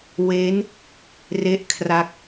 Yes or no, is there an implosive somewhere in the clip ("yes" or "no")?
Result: no